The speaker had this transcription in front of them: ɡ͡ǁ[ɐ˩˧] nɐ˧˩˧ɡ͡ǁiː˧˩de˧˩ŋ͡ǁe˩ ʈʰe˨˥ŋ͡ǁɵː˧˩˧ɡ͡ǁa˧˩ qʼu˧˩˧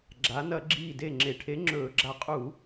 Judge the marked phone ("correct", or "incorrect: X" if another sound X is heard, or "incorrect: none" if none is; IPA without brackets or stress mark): incorrect: a˩˧